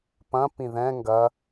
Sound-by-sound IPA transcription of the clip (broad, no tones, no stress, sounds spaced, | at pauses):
p ɐ̃ p ĩ ð ɛ̃ ŋ ɡ ɐ